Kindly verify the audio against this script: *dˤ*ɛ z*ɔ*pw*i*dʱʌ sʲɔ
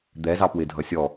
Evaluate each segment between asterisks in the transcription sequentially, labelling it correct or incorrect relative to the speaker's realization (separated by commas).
incorrect, incorrect, incorrect